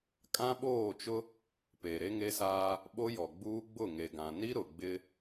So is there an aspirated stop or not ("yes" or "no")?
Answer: no